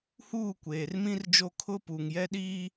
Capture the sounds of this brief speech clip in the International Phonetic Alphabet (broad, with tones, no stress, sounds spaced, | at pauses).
h uː˦˨ kʷ eː˨ r m ĩ˦ r d͡ʒ o˦˨ kʰ ʊ˦ p u˨ ŋ j ɛ˦ ɗ i˦